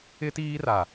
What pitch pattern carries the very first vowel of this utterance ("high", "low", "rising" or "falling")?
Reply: high